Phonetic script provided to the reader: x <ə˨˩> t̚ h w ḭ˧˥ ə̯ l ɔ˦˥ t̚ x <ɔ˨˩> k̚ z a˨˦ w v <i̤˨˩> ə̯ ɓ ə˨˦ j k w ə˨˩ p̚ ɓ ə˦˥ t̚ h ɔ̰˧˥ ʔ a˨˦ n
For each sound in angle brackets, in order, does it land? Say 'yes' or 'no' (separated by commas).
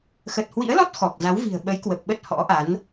yes, yes, yes